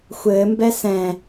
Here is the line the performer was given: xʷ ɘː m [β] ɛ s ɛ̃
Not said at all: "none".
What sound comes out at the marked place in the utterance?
b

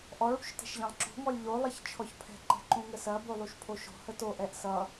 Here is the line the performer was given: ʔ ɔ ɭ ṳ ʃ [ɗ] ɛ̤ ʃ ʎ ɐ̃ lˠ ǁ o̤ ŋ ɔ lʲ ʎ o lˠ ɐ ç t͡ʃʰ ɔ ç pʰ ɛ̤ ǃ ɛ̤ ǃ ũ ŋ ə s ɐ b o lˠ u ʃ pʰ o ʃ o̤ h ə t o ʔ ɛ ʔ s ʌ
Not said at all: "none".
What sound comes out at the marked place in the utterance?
t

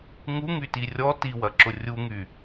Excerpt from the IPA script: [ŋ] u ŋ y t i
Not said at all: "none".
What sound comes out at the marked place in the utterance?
ŋ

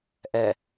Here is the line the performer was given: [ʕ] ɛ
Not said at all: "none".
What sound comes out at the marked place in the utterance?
ʔ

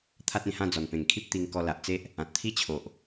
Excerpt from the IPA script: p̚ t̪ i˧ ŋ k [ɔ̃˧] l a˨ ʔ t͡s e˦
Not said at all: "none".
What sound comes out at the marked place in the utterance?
ɔ˧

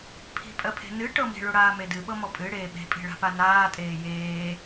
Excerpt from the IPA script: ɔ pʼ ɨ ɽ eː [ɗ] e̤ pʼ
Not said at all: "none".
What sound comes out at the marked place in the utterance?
ɓ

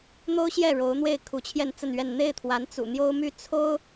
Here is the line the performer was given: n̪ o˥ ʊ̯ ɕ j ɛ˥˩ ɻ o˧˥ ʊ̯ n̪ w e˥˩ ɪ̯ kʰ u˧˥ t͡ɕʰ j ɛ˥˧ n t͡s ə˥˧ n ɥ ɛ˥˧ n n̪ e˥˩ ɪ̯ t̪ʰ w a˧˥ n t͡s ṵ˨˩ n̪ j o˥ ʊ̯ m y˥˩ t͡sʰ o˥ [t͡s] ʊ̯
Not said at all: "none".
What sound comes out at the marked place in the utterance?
none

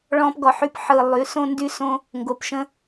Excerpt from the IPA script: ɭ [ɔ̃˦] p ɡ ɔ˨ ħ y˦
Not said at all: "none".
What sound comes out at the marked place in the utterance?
ɔ̃˦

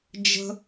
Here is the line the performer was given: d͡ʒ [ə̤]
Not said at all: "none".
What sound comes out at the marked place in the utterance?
ə̤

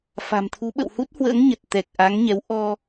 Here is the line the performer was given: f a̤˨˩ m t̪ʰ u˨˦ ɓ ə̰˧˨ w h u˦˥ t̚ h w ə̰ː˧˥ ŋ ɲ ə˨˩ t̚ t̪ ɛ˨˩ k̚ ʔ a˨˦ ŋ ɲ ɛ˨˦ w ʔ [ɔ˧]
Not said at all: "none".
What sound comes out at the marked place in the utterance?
ɔ˧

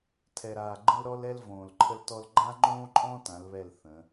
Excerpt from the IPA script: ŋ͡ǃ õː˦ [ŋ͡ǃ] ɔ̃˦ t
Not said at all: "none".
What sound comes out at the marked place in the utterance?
ǃʼ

